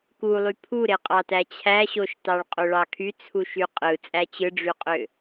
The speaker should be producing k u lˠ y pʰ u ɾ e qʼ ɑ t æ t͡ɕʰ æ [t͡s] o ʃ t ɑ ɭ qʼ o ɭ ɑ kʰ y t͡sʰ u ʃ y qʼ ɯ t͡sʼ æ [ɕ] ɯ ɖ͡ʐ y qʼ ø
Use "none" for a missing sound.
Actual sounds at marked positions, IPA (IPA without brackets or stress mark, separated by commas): ɕ, t͡ɕ